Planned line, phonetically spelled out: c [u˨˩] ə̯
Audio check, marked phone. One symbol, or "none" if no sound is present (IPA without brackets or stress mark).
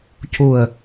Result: u˨˩